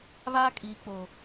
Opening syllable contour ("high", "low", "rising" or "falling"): high